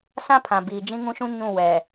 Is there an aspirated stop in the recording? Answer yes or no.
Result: yes